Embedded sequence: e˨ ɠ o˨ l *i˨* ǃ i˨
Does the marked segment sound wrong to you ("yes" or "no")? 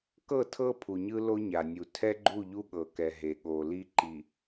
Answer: yes